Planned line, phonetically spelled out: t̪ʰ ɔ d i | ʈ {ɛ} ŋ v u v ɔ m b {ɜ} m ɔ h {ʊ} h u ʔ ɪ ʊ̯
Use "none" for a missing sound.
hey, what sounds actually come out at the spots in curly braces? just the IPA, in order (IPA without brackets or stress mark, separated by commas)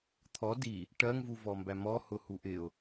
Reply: ɜ, æ, ʊ